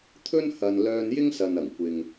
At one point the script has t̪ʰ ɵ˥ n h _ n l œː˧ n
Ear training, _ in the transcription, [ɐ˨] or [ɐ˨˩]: ɐ˨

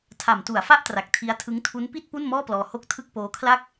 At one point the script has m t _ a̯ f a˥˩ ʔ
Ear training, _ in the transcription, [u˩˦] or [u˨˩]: u˩˦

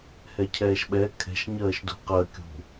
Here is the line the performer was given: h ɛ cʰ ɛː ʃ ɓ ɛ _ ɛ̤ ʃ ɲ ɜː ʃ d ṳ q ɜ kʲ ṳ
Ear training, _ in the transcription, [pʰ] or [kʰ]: kʰ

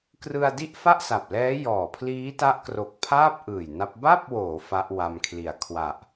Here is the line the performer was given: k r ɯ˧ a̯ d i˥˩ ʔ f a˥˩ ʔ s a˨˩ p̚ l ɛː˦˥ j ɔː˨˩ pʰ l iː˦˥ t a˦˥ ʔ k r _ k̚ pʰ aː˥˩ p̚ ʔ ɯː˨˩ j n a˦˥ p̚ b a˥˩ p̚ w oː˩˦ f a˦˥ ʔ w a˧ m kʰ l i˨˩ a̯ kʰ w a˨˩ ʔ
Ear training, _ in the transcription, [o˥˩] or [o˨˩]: o˨˩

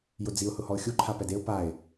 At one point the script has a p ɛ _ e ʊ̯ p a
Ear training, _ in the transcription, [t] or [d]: d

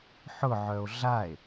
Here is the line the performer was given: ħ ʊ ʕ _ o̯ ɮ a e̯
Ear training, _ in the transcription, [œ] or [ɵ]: œ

